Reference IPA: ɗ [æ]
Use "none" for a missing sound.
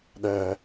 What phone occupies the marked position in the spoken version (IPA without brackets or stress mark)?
ɛ